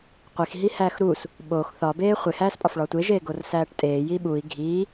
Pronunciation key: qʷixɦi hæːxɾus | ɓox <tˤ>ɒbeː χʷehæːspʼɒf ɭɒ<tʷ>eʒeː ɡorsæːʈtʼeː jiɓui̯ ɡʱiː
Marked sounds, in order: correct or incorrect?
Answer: incorrect, correct

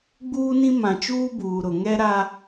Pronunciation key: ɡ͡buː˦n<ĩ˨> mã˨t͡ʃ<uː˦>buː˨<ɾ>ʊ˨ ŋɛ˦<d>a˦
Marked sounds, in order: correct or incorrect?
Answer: incorrect, correct, correct, incorrect

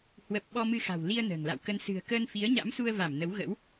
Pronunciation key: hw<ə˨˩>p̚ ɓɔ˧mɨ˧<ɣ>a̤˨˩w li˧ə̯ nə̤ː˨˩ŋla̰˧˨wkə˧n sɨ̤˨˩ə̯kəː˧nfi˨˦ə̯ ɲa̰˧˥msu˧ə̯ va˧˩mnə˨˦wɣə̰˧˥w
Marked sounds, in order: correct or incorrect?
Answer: correct, incorrect

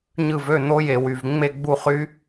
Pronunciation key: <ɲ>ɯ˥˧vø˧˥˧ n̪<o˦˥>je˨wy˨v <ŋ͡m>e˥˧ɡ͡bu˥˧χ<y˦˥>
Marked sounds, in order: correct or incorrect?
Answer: correct, correct, correct, correct

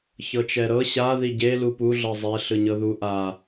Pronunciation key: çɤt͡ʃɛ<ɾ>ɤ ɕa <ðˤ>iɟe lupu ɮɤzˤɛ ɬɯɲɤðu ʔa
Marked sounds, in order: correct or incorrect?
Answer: correct, incorrect

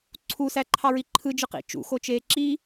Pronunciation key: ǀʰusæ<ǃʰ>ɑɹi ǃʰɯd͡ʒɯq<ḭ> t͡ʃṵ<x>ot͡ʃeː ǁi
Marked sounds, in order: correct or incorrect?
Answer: correct, correct, correct

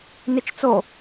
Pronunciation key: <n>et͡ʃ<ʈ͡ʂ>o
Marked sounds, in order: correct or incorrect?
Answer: correct, incorrect

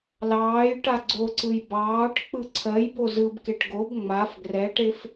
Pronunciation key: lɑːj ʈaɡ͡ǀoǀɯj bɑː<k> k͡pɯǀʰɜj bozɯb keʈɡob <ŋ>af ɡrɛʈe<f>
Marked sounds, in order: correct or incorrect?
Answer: incorrect, incorrect, correct

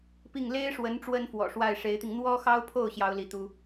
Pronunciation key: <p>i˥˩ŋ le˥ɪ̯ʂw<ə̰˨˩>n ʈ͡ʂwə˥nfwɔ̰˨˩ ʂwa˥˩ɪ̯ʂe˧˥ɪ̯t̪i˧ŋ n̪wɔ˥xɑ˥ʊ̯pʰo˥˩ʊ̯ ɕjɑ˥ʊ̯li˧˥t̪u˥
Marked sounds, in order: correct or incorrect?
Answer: correct, incorrect

